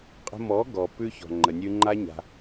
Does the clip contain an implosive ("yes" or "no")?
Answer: no